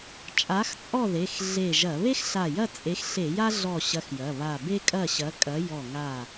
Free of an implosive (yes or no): yes